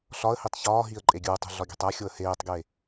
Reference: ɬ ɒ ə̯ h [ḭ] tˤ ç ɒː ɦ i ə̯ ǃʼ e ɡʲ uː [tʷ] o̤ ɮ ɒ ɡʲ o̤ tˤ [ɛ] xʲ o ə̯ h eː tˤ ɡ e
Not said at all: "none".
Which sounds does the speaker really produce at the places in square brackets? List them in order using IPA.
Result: i, tˤ, æ

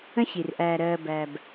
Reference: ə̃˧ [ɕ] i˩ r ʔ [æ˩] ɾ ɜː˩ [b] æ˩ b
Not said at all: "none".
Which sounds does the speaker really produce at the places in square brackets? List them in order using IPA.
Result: ɕ, æː˩, b

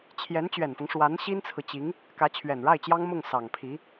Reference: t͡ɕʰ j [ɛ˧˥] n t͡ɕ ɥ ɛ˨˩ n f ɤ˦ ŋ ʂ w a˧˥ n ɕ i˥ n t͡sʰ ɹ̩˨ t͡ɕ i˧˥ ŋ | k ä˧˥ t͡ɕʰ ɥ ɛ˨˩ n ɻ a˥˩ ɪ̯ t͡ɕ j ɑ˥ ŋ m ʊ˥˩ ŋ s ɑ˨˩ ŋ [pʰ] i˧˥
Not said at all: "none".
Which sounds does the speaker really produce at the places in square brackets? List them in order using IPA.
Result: ɛ˧˥, pʰ

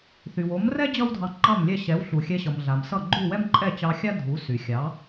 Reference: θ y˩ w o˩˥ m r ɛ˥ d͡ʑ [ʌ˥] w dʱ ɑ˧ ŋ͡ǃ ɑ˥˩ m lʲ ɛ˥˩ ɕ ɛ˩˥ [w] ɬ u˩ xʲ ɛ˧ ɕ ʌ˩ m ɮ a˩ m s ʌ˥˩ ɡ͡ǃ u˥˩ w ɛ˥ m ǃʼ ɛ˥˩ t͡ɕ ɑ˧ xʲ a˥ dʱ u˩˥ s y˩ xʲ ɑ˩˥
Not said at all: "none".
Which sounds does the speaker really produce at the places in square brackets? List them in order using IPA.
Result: ʌ˥, w

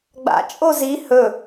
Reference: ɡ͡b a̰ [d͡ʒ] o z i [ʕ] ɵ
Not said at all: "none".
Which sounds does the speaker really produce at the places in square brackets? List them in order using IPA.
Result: t͡ʃʼ, h

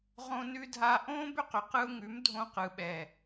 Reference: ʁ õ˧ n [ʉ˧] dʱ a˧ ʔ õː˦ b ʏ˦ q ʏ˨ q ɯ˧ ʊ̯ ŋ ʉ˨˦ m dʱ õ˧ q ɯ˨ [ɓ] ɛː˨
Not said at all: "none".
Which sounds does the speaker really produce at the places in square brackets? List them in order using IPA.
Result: ʉ˧, ɓ

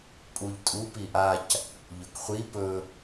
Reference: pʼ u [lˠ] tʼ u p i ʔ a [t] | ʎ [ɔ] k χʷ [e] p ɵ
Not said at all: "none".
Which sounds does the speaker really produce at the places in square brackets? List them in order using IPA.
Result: ʎ, c, ɵ, i

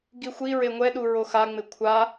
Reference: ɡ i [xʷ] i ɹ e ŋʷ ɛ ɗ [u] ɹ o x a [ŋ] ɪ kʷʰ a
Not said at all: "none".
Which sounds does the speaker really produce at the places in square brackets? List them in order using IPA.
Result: xʷ, u, ŋ͡m

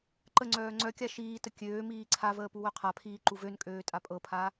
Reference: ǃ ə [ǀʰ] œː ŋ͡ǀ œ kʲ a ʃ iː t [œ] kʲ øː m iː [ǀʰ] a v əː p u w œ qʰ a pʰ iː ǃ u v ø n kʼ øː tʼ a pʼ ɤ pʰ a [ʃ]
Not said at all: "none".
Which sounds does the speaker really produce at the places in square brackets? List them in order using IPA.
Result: ŋ͡ǀ, ə, ǀʰ, none

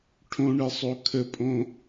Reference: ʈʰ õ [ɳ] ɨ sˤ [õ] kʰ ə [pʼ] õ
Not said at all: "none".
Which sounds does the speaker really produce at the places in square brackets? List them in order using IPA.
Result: ɳ, o, pʼ

